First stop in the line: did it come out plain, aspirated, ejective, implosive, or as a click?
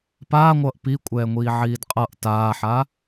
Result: plain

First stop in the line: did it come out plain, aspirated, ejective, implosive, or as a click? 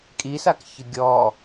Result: ejective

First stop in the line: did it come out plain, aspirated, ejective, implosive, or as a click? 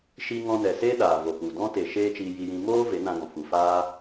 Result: implosive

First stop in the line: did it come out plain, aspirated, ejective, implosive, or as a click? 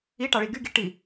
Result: plain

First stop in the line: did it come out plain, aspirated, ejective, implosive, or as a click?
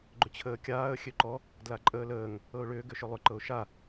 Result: click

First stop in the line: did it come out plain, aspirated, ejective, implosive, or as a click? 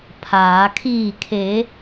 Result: aspirated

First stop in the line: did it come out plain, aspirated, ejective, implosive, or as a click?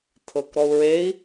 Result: aspirated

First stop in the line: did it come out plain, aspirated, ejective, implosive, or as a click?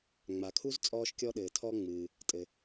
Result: aspirated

